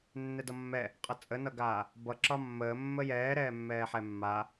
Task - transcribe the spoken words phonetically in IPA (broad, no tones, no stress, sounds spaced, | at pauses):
nː ɛ d ʌ mː ɛ | qʼ ʌ t͡sʼ ə n ʌ ɡ aː | b ʌ ǁ ɒ mː əː mː ə j ɛː ɾ ɛː mː ɛː ħ ɛ mː a